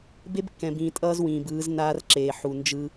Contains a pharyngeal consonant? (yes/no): yes